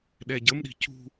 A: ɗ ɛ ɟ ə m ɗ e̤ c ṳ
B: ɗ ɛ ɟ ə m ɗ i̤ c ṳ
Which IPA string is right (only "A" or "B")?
B